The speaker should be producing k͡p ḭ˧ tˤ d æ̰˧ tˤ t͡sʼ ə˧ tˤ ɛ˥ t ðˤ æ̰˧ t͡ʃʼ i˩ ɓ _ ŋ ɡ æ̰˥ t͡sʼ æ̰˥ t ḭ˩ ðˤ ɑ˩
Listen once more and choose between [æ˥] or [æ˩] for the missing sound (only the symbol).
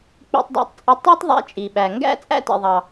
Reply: æ˩